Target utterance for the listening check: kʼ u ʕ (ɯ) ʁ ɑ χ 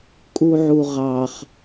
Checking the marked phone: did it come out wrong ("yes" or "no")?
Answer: yes